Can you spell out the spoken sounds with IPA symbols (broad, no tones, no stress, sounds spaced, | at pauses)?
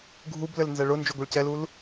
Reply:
ɡʱ u b l ɘ l n z ɛ ɭ ʊ n d͡ʒ o ɡʷ ɛ ɭ c ɛ l u l